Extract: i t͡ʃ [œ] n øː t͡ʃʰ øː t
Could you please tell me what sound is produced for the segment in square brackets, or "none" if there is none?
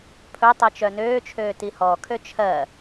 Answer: œ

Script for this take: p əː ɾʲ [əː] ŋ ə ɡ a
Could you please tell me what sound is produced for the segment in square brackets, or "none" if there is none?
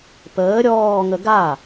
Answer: ɔː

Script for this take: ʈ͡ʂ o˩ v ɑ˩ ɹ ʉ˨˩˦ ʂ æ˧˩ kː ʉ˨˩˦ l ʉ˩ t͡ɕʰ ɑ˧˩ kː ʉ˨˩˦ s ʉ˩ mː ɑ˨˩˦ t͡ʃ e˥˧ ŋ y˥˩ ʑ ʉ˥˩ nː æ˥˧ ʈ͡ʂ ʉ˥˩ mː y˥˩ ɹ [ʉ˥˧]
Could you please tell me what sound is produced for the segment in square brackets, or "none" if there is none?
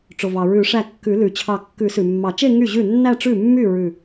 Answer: ʉ˧˩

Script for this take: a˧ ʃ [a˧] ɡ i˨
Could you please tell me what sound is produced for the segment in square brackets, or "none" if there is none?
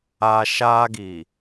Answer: a˧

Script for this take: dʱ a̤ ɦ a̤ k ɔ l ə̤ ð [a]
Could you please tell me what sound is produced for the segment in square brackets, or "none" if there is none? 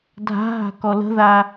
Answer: a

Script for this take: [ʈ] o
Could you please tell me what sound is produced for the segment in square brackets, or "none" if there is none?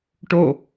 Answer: ʈ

